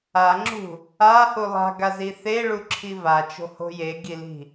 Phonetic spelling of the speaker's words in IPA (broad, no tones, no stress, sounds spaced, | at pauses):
a ŋ͡ǁ ṳ | a h u lˠ a̤ ɡ a z i θ e ɭ u ǁʰ i v a t͡ʃ o̤ h o̤ j e ɡ i l i̤